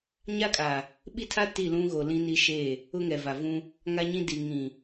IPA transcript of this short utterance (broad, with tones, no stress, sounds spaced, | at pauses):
ɲ a˦ kʼ a˨ | ɓ i˦ tʰ a˦ t i˦˨ l ũ˦ ɣ o˨ l ĩ˦ n i˦ ʃ e˦˨ | ʊ˦ ŋ ɛ˨ v a˨ v ũ˦ | ŋ a˦ ɲ ĩ˦ d i˨ ŋ ĩ˨